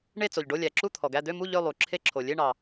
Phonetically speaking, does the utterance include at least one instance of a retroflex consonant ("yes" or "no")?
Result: yes